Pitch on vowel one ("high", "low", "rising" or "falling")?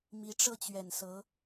rising